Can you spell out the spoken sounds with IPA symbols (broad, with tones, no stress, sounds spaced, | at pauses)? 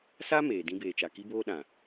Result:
s a˦ m eː˨ d ĩ˦ b eː˨ t͡ʃ a˨ k i˦ b oː˦ ɗ ã˨